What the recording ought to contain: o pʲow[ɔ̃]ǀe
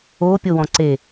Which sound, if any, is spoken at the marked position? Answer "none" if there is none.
ɔ̃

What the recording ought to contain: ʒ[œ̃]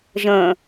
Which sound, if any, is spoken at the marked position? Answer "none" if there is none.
ə̃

